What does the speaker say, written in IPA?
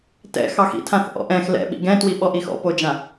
t ɛ̰ x ɑ x ḭ tʰ ã θ ʔ ɔ̰ ʔ ɛ̃ x l ɛ̰ ɓ ḭ ɡ ɛ̃ t w i ɓ ɔ ʔ i x ɔ̰ p o d͡ʒ ã

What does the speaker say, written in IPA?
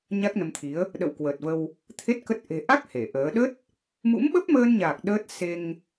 ɲ a˦˥ k̚ n ə˧ m t̪ʰ i˨˦ ə̯ | ɗ ə̰˧˨ w k w əː˨˩ t̚ v ə˧ w | t̪ʰ e˦˥ t̚ k ə˦˥ t̚ ʔ e̤˨˩ ʔ a˦˥ k̚ h e˧˩ ʔ əː˨˦ ɗ ə˦˥ t̚ | m ṵ˧˥ m ɓ ə˦˥ p̚ m əː˧ n ɲ aː˨˩ k̚ ɗ əː˦˥ t̚ s e˧ ŋ

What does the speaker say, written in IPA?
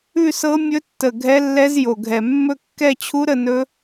ʉ˥˧ s ɤ˦˥ mʲ ɵ˦˥ tː ə˨˩ ɡʱ ɛ˦˥ lː ɛ˦˥ z j o˨˩ ɡʱ ɛ˨˩ mː ɵ˥˧ kː ɛ˥˧ t͡ɕʰ u˦˥ ɾ ə˥˧ n ɵ˦˥

